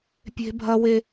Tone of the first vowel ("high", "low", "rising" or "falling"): high